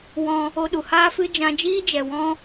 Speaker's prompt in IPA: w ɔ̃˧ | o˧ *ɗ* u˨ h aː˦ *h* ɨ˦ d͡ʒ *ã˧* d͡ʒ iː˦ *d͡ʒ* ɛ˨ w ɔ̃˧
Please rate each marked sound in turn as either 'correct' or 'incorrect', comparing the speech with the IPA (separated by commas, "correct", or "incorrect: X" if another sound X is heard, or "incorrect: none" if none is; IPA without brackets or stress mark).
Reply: correct, incorrect: f, correct, correct